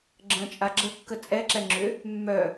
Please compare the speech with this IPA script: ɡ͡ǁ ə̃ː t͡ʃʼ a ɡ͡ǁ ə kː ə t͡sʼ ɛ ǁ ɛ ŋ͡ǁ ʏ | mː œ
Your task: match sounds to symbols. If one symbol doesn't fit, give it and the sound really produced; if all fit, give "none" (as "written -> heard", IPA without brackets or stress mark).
none